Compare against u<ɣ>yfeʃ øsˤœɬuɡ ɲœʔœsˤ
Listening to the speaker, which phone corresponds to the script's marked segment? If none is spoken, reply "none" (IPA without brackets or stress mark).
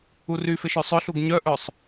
r